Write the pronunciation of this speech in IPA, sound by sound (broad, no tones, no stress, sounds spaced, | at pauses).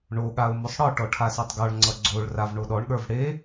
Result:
ɳ o ɠ a ʊ̯ m o sˤ ɽ ɒ ʈ ɔ ʈʰ a s ə˞ tˤ ɡ ɔ ɭ ŋ͡ǀ ʌ ɡ͡ǀ o ɭ r a v ɳ o ɗ ɔ ɳ ɠ ə˞ v ɽ e